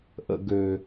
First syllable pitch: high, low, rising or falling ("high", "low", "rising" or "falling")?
high